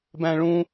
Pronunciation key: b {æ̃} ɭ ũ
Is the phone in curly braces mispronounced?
no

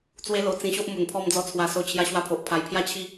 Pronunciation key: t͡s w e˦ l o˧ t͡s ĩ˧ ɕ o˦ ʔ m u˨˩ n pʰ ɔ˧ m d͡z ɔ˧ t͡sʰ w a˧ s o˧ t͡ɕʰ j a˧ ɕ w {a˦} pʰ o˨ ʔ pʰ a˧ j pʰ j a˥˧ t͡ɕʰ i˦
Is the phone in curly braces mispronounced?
yes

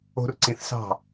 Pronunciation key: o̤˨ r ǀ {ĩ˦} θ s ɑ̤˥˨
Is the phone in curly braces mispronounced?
yes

